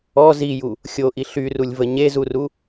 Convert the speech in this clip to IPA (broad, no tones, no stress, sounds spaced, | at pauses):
ɔ z i j u | xʲ o ʔ i ɬ y r u lʲ v ə ɲ e z u r u